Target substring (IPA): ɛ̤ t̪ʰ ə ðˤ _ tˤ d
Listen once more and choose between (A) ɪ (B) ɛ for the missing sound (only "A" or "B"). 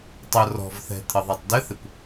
B